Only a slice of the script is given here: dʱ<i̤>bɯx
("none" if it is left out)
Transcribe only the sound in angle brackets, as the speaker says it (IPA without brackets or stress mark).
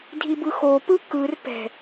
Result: i